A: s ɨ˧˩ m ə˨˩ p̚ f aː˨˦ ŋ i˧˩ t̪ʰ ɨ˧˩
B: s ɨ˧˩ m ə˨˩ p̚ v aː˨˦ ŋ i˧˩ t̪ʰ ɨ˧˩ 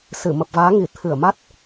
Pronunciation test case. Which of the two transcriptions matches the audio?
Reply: B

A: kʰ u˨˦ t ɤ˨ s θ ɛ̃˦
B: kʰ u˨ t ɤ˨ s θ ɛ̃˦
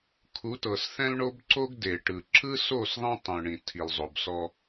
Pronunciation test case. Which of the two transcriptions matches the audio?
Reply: A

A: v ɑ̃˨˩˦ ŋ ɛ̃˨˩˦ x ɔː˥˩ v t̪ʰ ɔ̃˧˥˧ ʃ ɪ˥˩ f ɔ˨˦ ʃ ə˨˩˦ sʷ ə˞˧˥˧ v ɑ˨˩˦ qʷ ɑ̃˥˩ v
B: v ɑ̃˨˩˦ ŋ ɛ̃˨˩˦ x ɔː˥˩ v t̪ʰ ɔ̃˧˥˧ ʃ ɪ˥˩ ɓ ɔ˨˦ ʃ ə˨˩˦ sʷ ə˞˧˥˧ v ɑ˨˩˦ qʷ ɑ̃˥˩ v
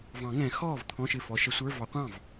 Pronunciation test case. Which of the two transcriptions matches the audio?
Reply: A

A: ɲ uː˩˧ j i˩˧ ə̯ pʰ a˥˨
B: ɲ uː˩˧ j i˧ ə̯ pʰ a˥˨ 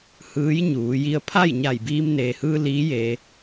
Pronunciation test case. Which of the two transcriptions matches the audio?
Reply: B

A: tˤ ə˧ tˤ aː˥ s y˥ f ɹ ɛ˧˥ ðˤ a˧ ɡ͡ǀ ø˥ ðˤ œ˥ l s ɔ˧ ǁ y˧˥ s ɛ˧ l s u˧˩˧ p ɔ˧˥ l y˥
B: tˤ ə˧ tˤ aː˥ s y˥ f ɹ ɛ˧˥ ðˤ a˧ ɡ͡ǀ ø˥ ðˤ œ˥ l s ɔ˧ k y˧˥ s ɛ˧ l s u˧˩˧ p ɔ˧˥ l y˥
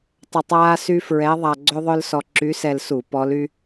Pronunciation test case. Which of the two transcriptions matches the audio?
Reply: A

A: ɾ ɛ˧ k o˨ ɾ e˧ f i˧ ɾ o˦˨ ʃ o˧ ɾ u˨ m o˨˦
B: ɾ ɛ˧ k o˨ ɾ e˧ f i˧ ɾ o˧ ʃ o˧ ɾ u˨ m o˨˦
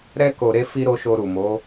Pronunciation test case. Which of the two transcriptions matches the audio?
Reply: B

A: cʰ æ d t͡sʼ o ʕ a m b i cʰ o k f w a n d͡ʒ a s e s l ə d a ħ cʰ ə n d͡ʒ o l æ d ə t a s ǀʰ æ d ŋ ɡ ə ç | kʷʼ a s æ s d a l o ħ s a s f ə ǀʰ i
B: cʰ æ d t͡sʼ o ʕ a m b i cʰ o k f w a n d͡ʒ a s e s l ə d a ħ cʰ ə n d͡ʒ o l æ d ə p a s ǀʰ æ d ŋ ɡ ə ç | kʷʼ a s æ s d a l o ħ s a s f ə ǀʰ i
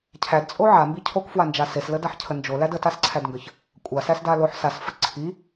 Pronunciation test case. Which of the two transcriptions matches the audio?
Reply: A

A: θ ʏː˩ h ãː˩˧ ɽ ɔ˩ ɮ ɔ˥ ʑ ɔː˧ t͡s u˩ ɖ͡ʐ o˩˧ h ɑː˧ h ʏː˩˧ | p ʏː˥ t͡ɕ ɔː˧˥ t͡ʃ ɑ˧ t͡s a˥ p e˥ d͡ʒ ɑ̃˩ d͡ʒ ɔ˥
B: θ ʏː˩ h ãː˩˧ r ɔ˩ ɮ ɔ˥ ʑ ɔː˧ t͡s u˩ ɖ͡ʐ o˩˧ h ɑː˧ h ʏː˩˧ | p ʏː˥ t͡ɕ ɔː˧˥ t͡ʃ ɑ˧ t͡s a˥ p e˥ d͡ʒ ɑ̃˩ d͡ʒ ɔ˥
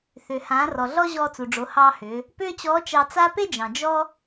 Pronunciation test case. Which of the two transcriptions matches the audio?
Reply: B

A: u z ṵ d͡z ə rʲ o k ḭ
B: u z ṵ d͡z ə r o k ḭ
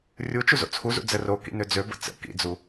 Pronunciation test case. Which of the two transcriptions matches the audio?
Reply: B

